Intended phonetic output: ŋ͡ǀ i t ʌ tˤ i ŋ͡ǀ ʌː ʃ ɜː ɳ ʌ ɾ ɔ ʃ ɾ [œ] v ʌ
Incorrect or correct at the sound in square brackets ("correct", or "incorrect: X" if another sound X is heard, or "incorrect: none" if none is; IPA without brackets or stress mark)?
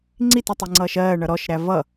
incorrect: æ